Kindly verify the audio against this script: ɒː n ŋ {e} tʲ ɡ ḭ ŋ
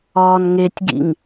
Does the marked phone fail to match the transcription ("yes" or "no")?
no